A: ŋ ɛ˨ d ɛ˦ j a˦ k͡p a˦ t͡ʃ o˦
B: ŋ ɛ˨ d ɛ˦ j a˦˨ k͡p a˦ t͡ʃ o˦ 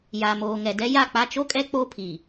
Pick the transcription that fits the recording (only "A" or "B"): B